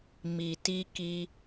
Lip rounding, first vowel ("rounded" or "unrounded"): unrounded